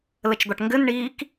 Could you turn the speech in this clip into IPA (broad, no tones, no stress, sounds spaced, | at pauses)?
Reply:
l ə t͡ʃ d̪ ɒ ʈ ŋ ɡ ɘ n ɳ iː k